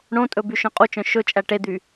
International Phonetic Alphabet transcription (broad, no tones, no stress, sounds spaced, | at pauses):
ɳ õ tʼ ɵ b y ʃ œ̃ qʼ u t͡ʃ œ̃ ʃ ɵ t͡ʃʼ æ ʈ e d̪ y